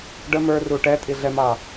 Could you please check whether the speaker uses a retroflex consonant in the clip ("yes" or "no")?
yes